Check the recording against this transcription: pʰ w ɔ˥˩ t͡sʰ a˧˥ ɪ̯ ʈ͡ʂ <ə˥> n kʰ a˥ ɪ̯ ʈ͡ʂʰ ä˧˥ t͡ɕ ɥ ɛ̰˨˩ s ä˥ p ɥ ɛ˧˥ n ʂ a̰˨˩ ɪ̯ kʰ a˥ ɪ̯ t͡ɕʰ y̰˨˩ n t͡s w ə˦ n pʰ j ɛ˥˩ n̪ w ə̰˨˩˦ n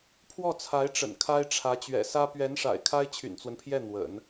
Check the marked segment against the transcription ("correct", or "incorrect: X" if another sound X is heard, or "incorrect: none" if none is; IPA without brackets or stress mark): incorrect: ə̰˨˩